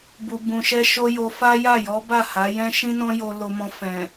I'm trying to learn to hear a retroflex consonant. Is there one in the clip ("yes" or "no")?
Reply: no